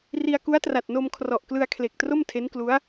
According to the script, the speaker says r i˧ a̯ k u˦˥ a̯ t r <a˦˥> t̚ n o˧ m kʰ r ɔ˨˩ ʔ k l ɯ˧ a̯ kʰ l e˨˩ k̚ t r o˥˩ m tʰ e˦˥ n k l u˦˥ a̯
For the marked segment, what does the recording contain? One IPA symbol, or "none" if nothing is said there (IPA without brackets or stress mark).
a˨˩